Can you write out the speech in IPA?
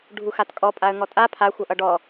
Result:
ɖʱuxatkʼɔ pʼaə̯ŋɔtʼa pʰa xʷʌʔʌɖɔ

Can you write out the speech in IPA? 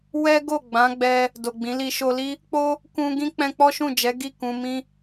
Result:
wɛ˦ɡo˦˨ɡ͡bã˨˦ɡ͡bɛ˧ | do˨ɡ͡bĩ˨˦li˧ ʃo˧li˦ | k͡po˦ | kũ˧ ɡĩ˦k͡pɛ̃˧k͡pɔ˦ ʃũ˦˨d͡ʒɛ˨˦ɡi˦˨ kũ˧mĩ˦

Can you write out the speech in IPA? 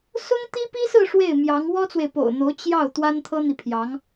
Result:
sʊ˥ŋ t̪i˥pi˥sɹ̩˥˧ ʂwe˥˩ɪ̯mjɑ˧˥ŋ wɔ˥t͡swe˨ɪ̯po̰˨˩ʊ̯n̪o˧˥ʊ̯ t͡ɕjɑ˥˩ʊ̯ t̪wa˥nt̪ʰɤ˥n̪i˨pʰjɑ˧˥ŋ

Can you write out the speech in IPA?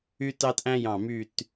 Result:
y˧tɑ˧tʔæ̃˧jɑ̃˨˩ my˨˩t

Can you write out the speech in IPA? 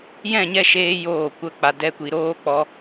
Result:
jɛ̃˦˨ɲɛ˦˨ʃeː˧ joː˦˨ kʷə˧ k͡pa˧dɛ˦kʷi˧ ɾoː˧ k͡pɔ˧

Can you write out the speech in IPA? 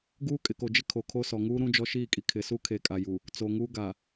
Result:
ɡuː˦kʼɪ˨ko˨d͡ʒɪ˦ kʰo˨kʰo˦sɔ˨ ŋuː˦ ɾũ˦d͡ʒɔ˦ʃiː˦˨kʼi˨ kʰɪ˨su˦ kʰe˨ kʼa˨ju˨ | t͡so˨ŋuː˦ ɡa˨

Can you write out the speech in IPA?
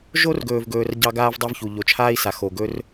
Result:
ʒo˦rɡɵː˨vɡɵː˨r ɟɑ˦ɡaː˦vdˤo˦vçu˨ ʎo˨t͡ʃʰaː˦i̯sa˨ xo˨ɡɵ˦r

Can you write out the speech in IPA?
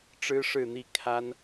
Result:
ʈ͡ʂɻ̩˥ʂɻ̩˥˧n̪i˥˩ kʰa˥n

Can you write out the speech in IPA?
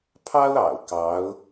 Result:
pʰɑ˥ʊ̯ɑ̰˨˩ʊ̯ kɑ˧˥ʊ̯

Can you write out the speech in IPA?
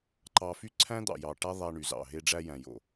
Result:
ǃɑ˧fy˦ǀʰæ̃˦ d̪ɑ̰˨jɑ˨ ʈæ˦ðˤæ˧ ɳy˨zɑ̰˨ ɦe˧ɖ͡ʐæ˧jæ̃˨jo̰˨

